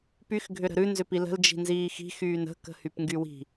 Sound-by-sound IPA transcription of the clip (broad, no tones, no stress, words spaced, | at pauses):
pyx ɡʱʏɾə̤ɾʉ nzʏpilə̤l d͡ʒi̤nziːxi̤ xyːnə̤ kə̤hypŋɡywi̤